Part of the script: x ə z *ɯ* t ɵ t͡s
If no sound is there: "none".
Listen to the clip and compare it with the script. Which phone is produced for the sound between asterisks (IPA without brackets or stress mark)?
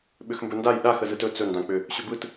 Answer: ɯ